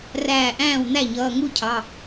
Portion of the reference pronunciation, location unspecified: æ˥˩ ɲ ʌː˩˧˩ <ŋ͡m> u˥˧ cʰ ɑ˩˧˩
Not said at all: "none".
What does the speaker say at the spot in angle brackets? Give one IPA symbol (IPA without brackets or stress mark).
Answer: ŋ